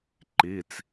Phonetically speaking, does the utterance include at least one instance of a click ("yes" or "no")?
yes